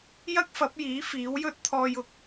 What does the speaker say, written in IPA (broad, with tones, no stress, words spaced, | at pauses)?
jɐ˥k̚fɐ˨˥p̚jiː˨˥ fiː˨˥wjɵ˥t̚t̪ʰɔː˧j ʊ˨k̚